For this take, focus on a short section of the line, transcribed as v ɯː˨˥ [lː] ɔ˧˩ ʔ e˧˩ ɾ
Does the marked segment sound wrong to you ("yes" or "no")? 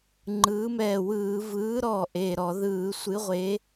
yes